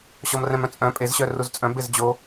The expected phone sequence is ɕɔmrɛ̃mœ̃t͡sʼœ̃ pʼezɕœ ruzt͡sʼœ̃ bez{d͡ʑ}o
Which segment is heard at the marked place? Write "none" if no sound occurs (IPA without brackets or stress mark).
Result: d͡ʑ